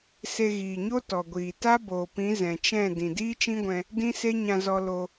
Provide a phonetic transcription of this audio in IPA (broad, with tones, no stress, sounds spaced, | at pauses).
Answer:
s e˧ ɣ iː˨ ɲ o˦ t ɔ˨ ɡʷ iː˨ t a˦ b oː˨ p ĩ˨˦ z ɛ̃˨ t͡ʃ ɛ̃˦˨ d ĩ˨ d iː˦ t͡ʃ ĩ˦ ɡʷ ɛ̃˧ | d ĩ˦ s e˦ ɲ ã˧ z ɔ˧ l o˧